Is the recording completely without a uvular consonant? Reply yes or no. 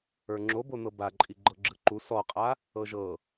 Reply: no